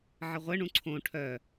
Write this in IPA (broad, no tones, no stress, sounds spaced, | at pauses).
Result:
ʕ ɘ ʁʷ ɘ ɳ ũ ǀʰ õ ʈʰ œ